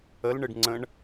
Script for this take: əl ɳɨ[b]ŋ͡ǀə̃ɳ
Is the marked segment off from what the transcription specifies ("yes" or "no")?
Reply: yes